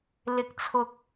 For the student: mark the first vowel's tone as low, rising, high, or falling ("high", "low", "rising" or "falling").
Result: low